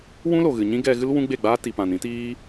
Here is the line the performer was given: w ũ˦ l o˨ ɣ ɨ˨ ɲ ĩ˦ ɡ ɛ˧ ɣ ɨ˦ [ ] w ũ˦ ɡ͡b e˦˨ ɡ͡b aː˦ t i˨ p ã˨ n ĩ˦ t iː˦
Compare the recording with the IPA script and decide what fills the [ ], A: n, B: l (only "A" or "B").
B